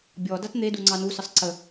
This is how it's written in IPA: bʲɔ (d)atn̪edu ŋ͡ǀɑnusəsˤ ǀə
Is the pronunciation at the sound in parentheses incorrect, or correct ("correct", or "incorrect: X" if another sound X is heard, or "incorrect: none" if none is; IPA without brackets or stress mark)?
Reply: correct